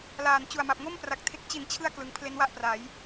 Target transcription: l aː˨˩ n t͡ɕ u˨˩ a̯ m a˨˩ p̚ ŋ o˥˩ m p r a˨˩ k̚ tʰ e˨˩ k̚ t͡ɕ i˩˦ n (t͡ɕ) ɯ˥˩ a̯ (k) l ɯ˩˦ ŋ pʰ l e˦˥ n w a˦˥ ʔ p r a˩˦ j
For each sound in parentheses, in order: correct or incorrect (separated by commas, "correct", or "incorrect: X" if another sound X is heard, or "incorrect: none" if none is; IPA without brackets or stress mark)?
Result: incorrect: t͡ɕʰ, correct